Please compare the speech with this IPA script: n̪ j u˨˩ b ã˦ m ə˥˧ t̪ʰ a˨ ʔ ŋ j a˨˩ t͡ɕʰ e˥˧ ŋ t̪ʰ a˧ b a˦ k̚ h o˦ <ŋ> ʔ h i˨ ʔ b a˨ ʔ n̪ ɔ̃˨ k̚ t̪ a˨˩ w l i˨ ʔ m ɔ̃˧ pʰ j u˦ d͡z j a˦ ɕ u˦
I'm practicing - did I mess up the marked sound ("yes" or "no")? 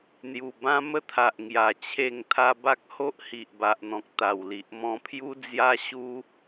yes